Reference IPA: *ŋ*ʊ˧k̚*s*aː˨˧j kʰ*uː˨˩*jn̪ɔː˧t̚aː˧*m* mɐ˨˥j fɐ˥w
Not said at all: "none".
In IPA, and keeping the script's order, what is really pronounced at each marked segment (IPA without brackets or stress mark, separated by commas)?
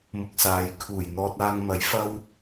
m, s, uː˨˩, ŋ